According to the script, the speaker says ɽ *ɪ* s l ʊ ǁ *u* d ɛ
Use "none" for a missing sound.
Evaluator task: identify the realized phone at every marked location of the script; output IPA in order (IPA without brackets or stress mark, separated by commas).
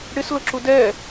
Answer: ɪ, u